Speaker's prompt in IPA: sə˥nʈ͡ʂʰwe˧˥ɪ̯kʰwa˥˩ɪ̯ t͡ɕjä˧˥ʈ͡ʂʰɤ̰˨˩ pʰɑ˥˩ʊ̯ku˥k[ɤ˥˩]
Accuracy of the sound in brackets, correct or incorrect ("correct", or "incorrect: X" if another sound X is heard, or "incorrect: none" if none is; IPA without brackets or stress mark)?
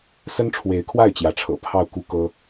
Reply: incorrect: ɤ˥